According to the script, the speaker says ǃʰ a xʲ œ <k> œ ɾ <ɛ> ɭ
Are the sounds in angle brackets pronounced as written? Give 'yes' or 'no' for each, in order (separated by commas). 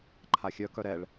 yes, yes